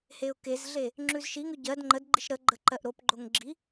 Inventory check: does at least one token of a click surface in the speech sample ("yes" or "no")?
yes